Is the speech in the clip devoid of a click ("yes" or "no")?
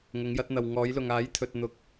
yes